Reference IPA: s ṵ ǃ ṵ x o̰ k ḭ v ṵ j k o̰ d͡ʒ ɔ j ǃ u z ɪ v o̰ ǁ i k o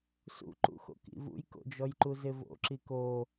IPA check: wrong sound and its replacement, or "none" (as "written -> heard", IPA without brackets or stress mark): none